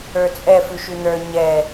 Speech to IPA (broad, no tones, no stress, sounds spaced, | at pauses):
ə˞ t͡sʼ ɛ f ʉ ʃ ʉ n̪ ə˞ ɲ ɛ